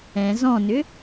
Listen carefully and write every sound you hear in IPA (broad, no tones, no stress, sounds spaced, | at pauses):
ɛ̃ z ɔ̃ n ʏ